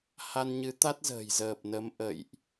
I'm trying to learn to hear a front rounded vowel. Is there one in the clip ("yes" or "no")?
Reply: no